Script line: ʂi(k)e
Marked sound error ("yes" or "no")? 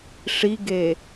yes